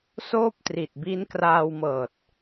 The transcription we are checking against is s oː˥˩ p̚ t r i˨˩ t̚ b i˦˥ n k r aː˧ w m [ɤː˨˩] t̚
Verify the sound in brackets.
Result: correct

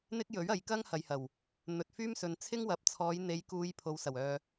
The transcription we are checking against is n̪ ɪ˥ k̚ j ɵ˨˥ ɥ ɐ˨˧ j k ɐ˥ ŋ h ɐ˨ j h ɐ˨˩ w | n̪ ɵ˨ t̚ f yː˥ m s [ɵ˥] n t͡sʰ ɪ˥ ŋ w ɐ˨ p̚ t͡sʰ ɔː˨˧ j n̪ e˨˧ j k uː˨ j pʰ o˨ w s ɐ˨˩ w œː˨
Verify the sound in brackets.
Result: incorrect: ɵ˨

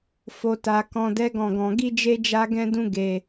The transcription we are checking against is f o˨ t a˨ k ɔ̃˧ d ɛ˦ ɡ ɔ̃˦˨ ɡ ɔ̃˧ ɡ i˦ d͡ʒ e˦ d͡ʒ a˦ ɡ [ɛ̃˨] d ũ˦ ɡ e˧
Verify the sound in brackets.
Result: incorrect: ɛ̃˦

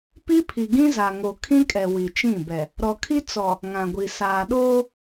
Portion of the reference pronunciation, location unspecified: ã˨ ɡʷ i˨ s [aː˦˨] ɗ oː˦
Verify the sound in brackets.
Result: incorrect: aː˨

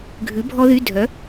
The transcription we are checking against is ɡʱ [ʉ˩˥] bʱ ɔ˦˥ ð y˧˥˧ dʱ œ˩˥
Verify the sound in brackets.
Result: correct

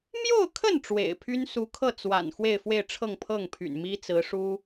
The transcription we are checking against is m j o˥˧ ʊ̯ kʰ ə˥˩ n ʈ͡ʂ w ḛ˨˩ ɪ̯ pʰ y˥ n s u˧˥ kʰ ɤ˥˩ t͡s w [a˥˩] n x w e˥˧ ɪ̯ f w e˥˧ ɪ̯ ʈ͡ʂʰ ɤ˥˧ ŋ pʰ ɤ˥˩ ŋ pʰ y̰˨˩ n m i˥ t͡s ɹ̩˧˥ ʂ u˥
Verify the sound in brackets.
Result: incorrect: a̰˨˩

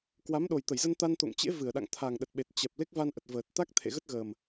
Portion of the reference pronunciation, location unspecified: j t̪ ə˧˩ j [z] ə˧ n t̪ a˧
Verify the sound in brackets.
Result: correct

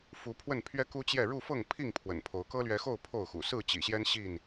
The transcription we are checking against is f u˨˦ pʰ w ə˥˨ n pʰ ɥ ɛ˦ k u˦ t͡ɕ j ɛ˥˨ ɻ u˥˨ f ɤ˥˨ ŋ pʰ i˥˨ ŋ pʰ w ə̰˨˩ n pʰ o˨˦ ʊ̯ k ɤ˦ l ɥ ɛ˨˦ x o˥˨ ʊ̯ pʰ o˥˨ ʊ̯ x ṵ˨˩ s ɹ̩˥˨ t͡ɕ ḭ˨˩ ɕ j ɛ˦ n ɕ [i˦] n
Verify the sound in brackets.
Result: incorrect: i˥˨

